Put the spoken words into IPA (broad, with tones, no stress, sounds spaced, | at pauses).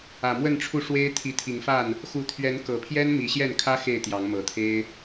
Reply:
ä˨˩ m w ə˥˨ n ʈ͡ʂʰ u˥˨ ʂ w e˦ ɪ̯ t̪ʰ i˨˦ t̪ʰ i˨˦ ŋ f a˥˨ n | x u˨˦ t̪ʰ ɥ ɛ˨˦ n k ɤ˨˩ pʰ j ɛ˦ n m i˨˦ ɕ j ɛ˥˨ n kʰ ä˦ x e˥˨ ɪ̯ t̪ j ɑ˨˦ ŋ m ɤ˨˩ t̪ʰ e˦ ɪ̯